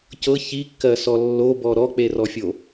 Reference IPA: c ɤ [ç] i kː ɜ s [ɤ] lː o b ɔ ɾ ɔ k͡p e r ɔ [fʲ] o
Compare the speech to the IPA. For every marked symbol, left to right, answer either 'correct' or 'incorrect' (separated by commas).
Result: correct, incorrect, correct